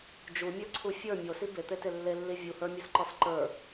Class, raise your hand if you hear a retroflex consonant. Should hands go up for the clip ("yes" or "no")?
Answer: no